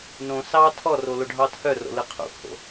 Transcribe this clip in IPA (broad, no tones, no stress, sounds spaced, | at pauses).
n õ s ɑ tʰ ɔ r o l o ɖʱ ɑ tʰ œ r o̰ l ɯ qʰ ṵ pʰ o̰